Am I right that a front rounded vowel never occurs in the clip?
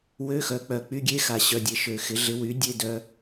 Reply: no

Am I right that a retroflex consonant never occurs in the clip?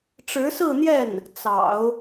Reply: no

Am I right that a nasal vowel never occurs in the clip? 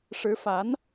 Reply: yes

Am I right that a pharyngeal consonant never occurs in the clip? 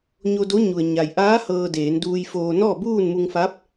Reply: yes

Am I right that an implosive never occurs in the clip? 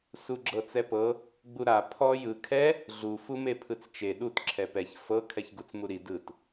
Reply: no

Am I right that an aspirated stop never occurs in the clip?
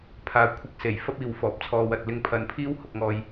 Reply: no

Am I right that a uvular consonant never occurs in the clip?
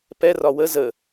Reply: yes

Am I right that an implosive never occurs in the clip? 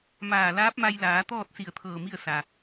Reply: yes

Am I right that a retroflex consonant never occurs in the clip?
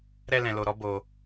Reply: yes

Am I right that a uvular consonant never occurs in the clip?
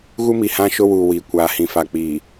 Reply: yes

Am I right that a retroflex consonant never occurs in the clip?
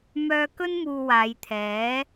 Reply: yes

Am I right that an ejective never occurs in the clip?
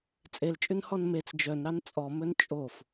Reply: no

